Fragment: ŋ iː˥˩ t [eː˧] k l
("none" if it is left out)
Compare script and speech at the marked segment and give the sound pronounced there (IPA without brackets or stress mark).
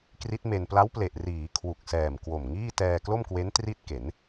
ɛː˧